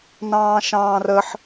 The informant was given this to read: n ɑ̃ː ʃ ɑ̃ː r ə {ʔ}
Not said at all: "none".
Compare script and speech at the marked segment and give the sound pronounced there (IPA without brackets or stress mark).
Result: ħ